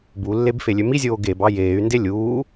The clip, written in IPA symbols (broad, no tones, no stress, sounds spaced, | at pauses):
b u lː e b f e lʲ ø m i zʲ oː ɡ e b ɑ j eː y̯ n d e lʲ uː